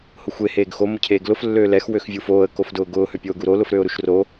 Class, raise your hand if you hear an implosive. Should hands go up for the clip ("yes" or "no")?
no